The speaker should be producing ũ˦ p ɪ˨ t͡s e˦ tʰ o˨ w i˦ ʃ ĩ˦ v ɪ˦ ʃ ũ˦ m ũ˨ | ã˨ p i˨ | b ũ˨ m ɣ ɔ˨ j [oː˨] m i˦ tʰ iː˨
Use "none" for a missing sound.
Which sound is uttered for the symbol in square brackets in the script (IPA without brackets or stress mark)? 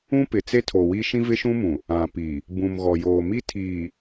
oː˨